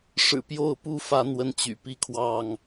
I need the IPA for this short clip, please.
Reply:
ʂ ɻ̩˨˩ p j o˥˨ ʊ̯ p u˥˨ f ä˨˦ n̪ w ə˨˦ n t͡ɕ y̰˨˩ p i˦ kʰ w ɑ˥˨ ŋ

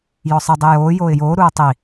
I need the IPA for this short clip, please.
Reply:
j ɔ sˤ ɨ dˤ i j oː j oː ɪ̯ j oː ɾ uː tˤ i

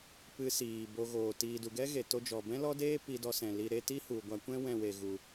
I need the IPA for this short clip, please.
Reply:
p ɨ˧ s iː˨ b o˧ ɣ oː˨ t iː˨ d u˨ ɡ ɛ˦ ɣ e˨ t o˧ d͡ʒ ɔ˨ b ɛ̃˦ l ɔ˦ d eː˦ p i˧ d ɔ˧ s ɛ̃˨ l i˧ ɾ e˦ t i˦ h u˨ ɡʷ a˧ kʷ ɛ̃˦ w ɛ̃˦˨ w e˨ ɣ u˨

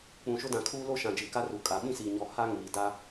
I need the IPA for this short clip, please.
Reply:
k͡p ũ˨ ʃ ʊ˦ d ã˨ kʰ uː˦ l o˦ ʃ ã˨ d͡ʒ i˨ k a˦ r u˨ kʼ a˨ ɓ ĩ˦ s iː˨ ɲ ɔ˨ h a˦ ŋ iː˨ d a˦

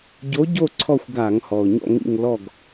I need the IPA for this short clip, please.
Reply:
ɟ o˨˥ ɟ o˦˨ ǀʰ ɔ˦˨ xʷ ɡ a˧˩˧ ŋ h ɔ˨˩ ʊ̯ ɲ ɔ̰˦˨ ŋ ḭ˦˨ ŋ l ɔ˦˨ ɡ

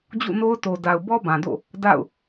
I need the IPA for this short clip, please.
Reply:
d͡ʑ ṵ˦˨ n o˦ ʊ̯ t o˨ d a˨ ʊ̯ b ɔ˦ b ã˨ d o̰˦˨ | d a̰˦˨ ʊ̯

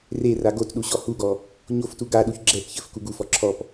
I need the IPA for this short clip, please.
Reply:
r e r a ɡ o t ɗ u ɕ ɔ h u ɡ ɔ | ɲ o f t u ɡ a ɗ u ç ɡ͡ǁ ɛ p ç ɘ f k u ɡ u f ɔ ǁʰ ɔ p

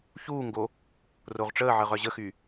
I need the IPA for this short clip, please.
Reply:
ç uː ŋ ɡ o | r o ʁ ʈ͡ʂ əː ʕ ə ʁ œ ʑ ə x y

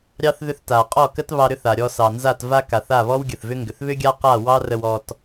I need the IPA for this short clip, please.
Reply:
ɾʲ ɑ˦ θ ð ʏ˧ θ t a˨ qʼ ɔ˦˨ k ə˦ t β ɑ˧ ɾ ʏ˦ θ a˨ ɾʲ ɔ˧ s ɑ˨ n z a˦˨ t v a˦ k a˨ θ a˦˨ β ɔ˦ w ɡʲ ə˨ θ v ʏ˦ ŋ ɡ ʏ˨ θ β ʏ˦ ɡʲ a˦ q a˦˨ w ɑ˦ r ə˧ w ɔ˧ t

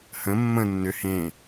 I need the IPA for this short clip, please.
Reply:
h ə̃ mː ə̃ nː ʏ h ẽ

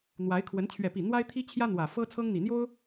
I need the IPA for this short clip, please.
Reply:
n̪ w a˧˥ ɪ̯ kʰ w ə˧˥ n t͡ɕʰ ɥ ɛ˥˧ p i˥˩ n̪ w a˥ ɪ̯ t̪ʰ i˥ t͡ɕʰ j ä˥ n̪ w ä˨˩ f ɤ˥ t͡sʰ ɤ˥ ŋ n̪ i˨˩ n̪ j o˥ ʊ̯

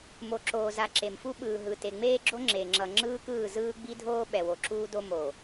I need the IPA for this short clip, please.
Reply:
m o˨ ǁ oː˨ z a˨ ǁ e˨ m f u˦ ɓ ɯː˨ ɦ ɯ˨ t e˨ ŋ͡m eː˦ ɡ͡ǁ o˦ ŋ͡ǁ e˨ ŋ͡ǁ ʌ˨ ŋ͡ǁ ɯː˦ k ɯː˦˨ z ɯː˦ ɡ͡b i˦ dʱ oː˦ ɓ ɛ˨ w o˨ ǁ uː˦ d o˦ m o˨

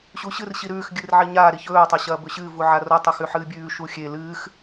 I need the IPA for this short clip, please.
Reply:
ɕ u ɕ ɨ r ɕ i ɾ ʉː x ɡʲ ɨ r ʕ i ɲ a ɾ i ç ɵː tˤ a ɕ ɐː b ɵ ɕ ɨː v u ʕ a r o tˤ ɵ x ʉ ħ ɨː bʲ ʉː ʃ u xʲ e l ɨː x

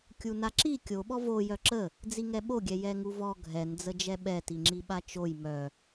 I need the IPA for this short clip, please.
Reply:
kʲ u n a ǁ i kʲ o ɓ ɔ v o j œ ǁ ə | d͡z i ŋ ɛ ɓ o ɡʲ ɛ j ɛ ŋ u v ɔ ɡʱ ɛ n d͡z ə d͡ʒ ɛ ɓ ɛ t i ŋ͡ǁ i ɓ a t͡ʃ o j m œ

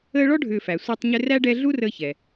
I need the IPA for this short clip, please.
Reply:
əː˦ ɭ ɔ˥ ɖʱ ʏː˨ f æ˩ sʷ æ˦ tˤ ɲ ʏ˦ r æ˥ ɖ ɛ˦ ɮ u˥ r əː˦ ç ɛ˩

